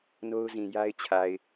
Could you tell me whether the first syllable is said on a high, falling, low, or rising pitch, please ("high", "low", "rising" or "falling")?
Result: high